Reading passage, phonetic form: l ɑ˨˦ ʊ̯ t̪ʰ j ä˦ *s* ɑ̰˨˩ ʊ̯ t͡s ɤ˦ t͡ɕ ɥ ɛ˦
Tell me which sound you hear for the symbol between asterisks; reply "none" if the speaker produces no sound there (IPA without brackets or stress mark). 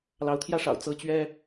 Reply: ʂ